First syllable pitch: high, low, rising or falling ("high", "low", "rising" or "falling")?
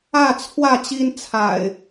falling